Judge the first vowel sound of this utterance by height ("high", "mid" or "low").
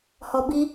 mid